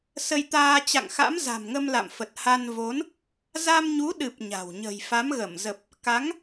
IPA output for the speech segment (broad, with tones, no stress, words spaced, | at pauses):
sə˧jt̪aː˧ t͡ɕa̰˧˨ŋxa̰˧˥mza̤˨˩mŋə˧m la̰˧˨mfə˨˩t̚ ha˧nvo˨˦n | za˧mɲu˨˦ɗɨ˨˩p̚ ɲa̤˨˩w ɲə̤˨˩jfa˨˦mɣə˧˩mzə˨˩p̚ | ka˨˦ŋ